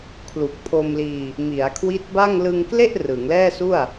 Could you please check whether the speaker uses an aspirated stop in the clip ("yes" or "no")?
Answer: yes